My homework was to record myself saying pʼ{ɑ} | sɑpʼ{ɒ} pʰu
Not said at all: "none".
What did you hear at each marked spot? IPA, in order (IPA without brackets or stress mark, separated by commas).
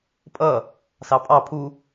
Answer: ʌ, ɑ